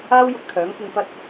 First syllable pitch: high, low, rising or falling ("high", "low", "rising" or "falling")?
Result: high